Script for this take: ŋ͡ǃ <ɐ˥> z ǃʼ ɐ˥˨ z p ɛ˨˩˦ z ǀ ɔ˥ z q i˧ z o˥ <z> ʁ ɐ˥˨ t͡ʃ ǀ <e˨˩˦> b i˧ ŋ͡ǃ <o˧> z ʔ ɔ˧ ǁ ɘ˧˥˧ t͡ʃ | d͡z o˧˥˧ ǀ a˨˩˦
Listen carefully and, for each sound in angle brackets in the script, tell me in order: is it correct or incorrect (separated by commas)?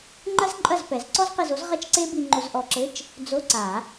correct, correct, incorrect, correct